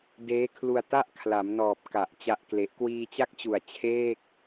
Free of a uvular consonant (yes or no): yes